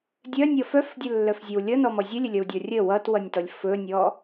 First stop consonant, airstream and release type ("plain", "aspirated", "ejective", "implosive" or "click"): plain